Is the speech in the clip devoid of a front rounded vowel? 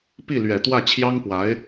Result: yes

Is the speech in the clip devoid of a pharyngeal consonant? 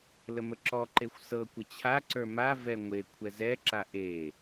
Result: yes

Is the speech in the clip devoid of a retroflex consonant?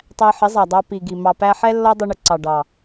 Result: no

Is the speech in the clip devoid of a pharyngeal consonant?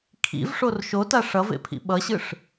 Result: yes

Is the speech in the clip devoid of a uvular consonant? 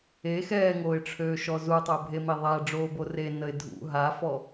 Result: yes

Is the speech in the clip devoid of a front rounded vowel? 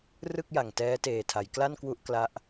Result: yes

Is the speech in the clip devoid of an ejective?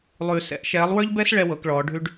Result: yes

